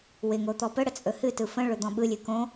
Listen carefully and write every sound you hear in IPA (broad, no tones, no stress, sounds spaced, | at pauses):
w ɪ ŋ o t̪ ɔ p ə ɽ ə t͡sʼ ɵ h ɨ t ɯ f ə̃ ɭ ɵ d̪ ɔ̃ ɓ ɯ lʲ ɨ k õ